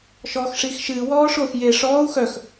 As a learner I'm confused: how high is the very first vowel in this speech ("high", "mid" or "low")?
mid